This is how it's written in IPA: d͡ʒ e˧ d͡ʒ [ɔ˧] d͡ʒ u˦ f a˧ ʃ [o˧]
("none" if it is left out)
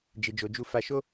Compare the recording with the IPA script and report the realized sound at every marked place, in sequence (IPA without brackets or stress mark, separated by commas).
o˧, o˦